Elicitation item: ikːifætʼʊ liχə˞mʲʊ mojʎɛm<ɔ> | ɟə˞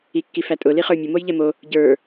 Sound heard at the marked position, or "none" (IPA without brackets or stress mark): o